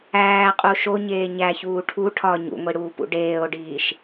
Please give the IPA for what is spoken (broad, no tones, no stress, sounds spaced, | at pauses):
æː qʼ u ʃ o ɲ eː ɲ æ ç uː ʈʰ u ʈʰ ɒ ɲ ṵ ŋʷ i ɽ uː p ṵ ɖ eː o̯ ɖ iː ʃ